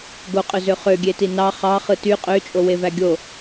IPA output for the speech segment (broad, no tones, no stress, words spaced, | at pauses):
ɡoqʼøzø χøɡʲeti nɑ χɑχɯ ty qʼøt͡ʃʼowevæ ɡʲo